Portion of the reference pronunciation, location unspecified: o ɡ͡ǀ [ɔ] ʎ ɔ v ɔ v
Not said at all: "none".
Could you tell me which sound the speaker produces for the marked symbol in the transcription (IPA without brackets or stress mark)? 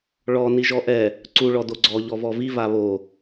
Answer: ɔ